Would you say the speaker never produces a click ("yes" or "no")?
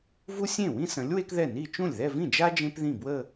yes